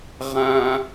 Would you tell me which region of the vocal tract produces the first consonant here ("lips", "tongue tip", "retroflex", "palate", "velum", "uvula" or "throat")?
uvula